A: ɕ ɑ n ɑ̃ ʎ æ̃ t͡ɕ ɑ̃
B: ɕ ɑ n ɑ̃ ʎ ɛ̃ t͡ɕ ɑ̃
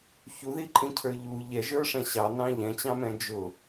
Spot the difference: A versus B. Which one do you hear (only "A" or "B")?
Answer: B